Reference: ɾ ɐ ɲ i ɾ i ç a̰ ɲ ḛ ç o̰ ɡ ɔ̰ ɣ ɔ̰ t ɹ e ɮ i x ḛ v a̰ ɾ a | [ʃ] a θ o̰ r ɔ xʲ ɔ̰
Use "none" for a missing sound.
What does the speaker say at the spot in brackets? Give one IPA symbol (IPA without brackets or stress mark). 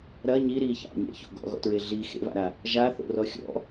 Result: ʒ